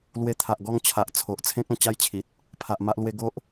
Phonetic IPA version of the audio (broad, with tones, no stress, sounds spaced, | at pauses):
l w e˧ t̪ʰ a˨ ʔ ɡ ɔ˥˧ ŋ t͡ɕʰ a˨ ʔ t͡sʰ o˨ ʔ t͡sʰ ẽ˦ k̚ ã˨˩ t͡ɕ a˥˧ j t͡ɕʰ i˨ t̚ | pʰ a˨ ʔ m a˦ ʔ l w e˧ ɡ o˦ ʔ